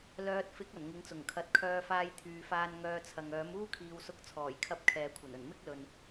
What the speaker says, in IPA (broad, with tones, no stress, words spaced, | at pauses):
lœː˧t̚ fɪ˨˥k̚ɐ˨˩n ŋɪ˨˥ŋt͡sʊ˨˩ŋ kʰɐ˨t̚kʰœː˧faː˧j t̪ʰyː˨faː˧n ŋœː˧t͡sʰɐ˨ŋ œː˨˥muː˥kʰiː˨˧w sʊ˧k̚t͡sʰɔː˨˩jkʰɐ˧p̚ kʰɛː˨kʷʰɐ˨˩nɵ˨˩n mɪ˥k̚lɵ˨n